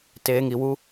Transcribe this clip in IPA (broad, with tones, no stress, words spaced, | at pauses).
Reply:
teː˨ŋi˨wu˧